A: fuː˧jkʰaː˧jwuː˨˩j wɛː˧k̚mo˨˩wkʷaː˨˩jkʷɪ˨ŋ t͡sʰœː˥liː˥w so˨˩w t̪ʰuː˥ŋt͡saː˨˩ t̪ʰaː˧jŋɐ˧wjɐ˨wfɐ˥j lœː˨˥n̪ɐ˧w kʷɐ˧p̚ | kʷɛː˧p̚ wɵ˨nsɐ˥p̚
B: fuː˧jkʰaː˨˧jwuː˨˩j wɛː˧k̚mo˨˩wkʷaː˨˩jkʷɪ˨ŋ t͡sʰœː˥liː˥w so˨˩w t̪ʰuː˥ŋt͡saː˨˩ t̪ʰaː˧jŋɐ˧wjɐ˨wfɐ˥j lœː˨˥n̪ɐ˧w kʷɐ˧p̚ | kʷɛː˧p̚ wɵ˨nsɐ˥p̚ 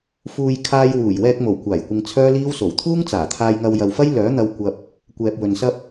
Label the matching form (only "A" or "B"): A